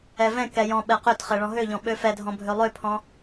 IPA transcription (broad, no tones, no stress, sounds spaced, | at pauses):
ɛ v ɛ̃ k ɛ j ɔ̃ ɓ ɛ q ø t χ ɛ ɭ ɔ̃ ɦ ø ʎ ɔ̃ ɓ ø f ɛ dʱ ɔ̃ bʱ ø lˠ ø pʰ ɔ̃